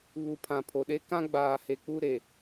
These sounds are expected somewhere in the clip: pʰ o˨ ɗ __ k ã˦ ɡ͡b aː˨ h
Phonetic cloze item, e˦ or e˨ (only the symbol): e˦